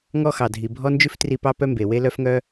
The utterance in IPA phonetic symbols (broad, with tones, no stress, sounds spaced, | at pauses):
ŋ ɔ˥ x ɑ˩ dʱ i˩ bʱ ɔ˥ n d͡ʒ ʉ˥ f t r i˧ p ɑ˥ p œ˥ m b e˩ w e˥ l œ˥ f ŋ œ˥